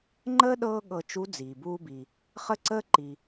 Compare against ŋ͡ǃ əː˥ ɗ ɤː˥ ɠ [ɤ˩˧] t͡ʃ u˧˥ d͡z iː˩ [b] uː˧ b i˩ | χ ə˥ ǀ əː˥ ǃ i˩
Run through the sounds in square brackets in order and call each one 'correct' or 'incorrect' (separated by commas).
incorrect, correct